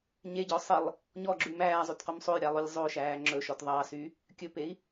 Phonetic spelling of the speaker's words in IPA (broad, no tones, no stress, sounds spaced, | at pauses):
ɲ e ɟ ɔ sˤ i lˠ | ɲ ɔ ɡ͡ǁ ʉ m æː zˤ ʉ t q o m sˤ o j ɾʲ ɑ lˠ o lʲ zˤ o ʃ æː ŋ͡ǁ ɵ ʃ ɔ t ðˤ ɑ s y | kʲ ɵ p e i̯